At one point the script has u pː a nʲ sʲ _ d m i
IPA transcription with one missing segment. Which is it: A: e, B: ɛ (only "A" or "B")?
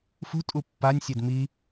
A